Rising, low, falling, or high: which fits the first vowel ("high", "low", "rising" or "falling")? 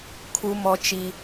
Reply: high